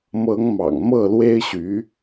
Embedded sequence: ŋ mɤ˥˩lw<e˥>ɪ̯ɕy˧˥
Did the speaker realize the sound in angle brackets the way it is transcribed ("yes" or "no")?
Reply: yes